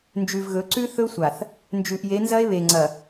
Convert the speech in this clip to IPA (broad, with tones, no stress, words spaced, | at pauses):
nd͡ʒʉ˨vɣɵ˨˦ǀʉ˦ θɵ˦sʷa˨θ | nd͡ʒʉ˨ʔje˨˦nzɐ˦e̯ βe˨ŋ͡ǀɐ˨